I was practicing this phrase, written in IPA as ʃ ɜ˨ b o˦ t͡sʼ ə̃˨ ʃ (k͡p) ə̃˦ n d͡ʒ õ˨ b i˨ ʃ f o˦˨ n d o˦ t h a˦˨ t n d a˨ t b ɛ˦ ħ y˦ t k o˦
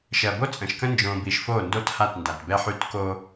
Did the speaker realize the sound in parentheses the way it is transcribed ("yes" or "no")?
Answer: no